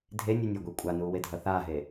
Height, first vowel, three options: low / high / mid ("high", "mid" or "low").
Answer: mid